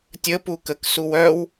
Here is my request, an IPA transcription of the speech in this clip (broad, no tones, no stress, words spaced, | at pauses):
tʲə pukək suwœw